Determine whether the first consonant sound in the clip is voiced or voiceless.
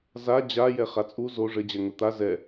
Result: voiced